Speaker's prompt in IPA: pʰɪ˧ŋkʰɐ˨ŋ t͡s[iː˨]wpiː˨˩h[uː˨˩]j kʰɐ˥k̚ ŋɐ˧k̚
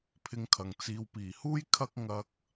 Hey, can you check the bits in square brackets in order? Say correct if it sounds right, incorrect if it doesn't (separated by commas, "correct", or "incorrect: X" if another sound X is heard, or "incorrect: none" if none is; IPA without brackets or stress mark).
correct, incorrect: uː˥